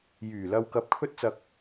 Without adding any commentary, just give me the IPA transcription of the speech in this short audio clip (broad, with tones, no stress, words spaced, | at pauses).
jyː˨˩lɐ˧w kɐ˧p̚kʰɵ˥t̚t͡sɐ˧k̚